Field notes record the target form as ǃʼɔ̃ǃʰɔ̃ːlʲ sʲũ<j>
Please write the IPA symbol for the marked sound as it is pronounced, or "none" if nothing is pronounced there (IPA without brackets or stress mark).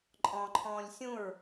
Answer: ɹ